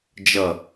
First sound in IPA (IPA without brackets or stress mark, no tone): d͡ʒ